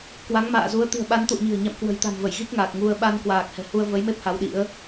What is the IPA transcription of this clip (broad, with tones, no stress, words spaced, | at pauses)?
kwa˨˦ŋma̰ː˧˨ zu˨˦ə̯ t̪i̤˨˩ə̯ɓa˨˦n t̪ṵ˧˨ə̯ɲi̤˨˩ə̯ ɲa̰˧˨m kwə̤˨˩jt̪a̤˨˩mvə˧˩j ɣi˦˥k̚ŋaː˨˩k̚ ŋu˧ə̯ ɓa˧nkwaː˨˩k̚hɛ̤˨˩ hu˧ə̯ və˨˦jme˦˥p̚ ha˨˦wɗḭ˧˥ə̯